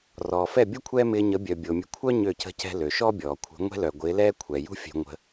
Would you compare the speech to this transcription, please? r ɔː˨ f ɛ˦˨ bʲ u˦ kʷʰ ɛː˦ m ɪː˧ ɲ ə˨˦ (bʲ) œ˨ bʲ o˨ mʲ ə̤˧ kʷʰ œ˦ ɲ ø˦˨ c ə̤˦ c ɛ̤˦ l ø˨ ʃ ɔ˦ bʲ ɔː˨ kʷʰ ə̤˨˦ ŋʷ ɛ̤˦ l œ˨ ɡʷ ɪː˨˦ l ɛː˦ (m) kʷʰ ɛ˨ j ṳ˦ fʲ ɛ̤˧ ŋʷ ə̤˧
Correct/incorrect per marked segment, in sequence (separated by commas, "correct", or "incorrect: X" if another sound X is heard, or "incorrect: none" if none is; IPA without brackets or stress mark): correct, incorrect: none